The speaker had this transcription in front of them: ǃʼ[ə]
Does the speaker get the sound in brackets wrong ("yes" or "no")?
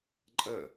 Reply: no